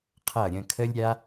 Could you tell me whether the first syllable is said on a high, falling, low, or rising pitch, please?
falling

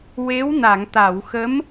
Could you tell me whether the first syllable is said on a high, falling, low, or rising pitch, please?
rising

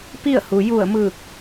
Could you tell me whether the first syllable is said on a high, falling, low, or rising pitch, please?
falling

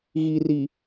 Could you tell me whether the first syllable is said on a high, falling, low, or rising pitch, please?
low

